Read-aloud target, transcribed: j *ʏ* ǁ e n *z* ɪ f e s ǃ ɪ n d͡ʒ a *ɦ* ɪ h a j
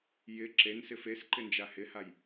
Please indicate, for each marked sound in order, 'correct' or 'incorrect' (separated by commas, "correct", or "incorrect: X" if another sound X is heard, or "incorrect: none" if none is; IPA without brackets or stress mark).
incorrect: ɪ, incorrect: s, incorrect: h